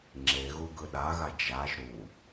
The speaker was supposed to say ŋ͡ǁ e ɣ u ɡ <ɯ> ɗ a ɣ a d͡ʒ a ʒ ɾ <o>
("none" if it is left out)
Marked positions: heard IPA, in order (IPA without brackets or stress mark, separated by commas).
ɯ, u